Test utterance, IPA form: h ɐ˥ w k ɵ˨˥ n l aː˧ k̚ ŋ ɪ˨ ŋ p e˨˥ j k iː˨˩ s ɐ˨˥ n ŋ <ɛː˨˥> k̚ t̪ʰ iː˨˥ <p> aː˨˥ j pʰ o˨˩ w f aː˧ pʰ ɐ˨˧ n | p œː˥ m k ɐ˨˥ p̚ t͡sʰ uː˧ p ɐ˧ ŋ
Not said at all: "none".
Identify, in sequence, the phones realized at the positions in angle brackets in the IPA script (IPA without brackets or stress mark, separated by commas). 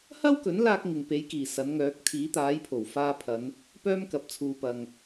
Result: œː˨˥, t̪